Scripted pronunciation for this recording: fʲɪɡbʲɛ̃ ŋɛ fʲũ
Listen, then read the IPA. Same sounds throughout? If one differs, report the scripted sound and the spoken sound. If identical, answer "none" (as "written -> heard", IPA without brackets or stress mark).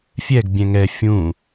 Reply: ɪ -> ɛ